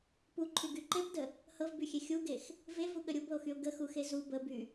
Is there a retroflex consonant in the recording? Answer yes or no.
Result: no